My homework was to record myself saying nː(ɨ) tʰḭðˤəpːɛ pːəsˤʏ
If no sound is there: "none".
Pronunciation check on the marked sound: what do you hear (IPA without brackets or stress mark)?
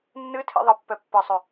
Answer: ɨ